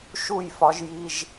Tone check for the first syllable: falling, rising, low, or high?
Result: falling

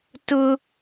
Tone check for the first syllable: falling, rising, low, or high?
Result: high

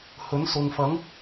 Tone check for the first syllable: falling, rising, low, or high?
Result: rising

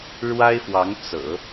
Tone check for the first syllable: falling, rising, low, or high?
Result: high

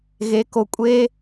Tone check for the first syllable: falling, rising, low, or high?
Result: rising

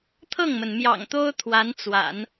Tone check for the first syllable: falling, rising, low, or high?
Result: falling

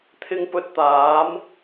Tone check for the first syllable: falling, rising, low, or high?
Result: low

